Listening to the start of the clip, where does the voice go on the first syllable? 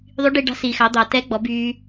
rising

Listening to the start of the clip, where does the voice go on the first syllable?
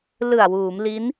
low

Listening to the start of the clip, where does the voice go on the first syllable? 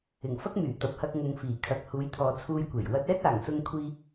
low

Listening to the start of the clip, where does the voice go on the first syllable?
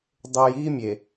low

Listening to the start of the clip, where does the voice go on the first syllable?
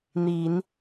low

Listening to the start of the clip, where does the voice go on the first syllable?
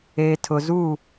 low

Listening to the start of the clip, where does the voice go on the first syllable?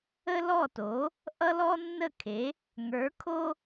high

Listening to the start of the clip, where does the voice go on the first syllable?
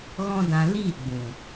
high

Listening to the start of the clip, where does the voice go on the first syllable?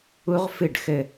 high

